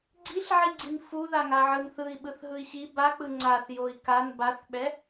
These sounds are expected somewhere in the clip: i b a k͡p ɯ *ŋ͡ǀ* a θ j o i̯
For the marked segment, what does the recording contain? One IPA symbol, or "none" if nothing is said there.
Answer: ŋ͡ǀ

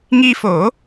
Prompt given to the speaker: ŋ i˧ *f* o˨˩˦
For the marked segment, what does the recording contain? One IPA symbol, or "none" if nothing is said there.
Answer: f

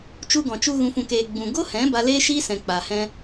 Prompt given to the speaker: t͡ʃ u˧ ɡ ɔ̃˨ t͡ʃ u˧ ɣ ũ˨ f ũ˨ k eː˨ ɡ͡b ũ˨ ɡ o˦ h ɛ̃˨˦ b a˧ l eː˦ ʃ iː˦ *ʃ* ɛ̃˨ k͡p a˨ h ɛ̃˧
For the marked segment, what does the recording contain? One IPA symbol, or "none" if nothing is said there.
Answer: s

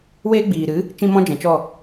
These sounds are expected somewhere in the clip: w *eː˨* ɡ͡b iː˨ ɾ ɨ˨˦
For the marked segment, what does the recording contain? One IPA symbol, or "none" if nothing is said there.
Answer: eː˦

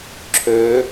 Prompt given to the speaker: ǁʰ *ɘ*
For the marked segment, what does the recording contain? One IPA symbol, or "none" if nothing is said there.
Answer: ø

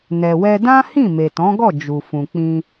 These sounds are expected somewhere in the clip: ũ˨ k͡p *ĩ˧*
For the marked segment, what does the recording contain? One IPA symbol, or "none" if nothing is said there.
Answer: ĩ˧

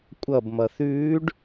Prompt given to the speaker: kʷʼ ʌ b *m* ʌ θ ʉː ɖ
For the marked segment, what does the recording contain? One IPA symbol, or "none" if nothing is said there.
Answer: m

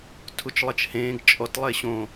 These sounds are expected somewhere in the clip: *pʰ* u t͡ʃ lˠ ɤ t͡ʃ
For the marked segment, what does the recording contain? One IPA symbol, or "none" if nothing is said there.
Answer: tʰ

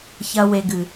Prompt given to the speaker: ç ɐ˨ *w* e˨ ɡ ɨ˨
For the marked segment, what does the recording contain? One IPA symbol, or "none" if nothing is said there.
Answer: w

